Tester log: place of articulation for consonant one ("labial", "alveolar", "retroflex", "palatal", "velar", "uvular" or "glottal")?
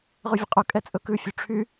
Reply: uvular